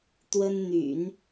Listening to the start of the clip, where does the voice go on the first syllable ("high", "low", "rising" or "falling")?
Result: high